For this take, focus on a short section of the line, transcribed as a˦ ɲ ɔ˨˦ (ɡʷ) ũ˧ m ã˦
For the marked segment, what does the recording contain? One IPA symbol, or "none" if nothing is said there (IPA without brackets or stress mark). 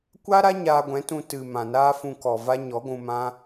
ɡʷ